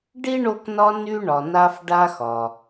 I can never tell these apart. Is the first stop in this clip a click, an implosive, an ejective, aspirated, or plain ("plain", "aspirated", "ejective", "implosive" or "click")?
plain